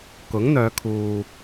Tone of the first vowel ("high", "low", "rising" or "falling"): rising